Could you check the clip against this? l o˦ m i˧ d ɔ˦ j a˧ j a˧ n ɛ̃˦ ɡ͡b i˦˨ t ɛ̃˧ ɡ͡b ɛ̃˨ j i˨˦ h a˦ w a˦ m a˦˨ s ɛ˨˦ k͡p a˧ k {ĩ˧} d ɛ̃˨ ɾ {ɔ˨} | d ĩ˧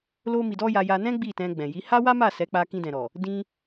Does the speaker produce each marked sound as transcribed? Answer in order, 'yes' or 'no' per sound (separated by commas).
yes, yes